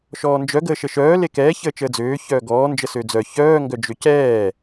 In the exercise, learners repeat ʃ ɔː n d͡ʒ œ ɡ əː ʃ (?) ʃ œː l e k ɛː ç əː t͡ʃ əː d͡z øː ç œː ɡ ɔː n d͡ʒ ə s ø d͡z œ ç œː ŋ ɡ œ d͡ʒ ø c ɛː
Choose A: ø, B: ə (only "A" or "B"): B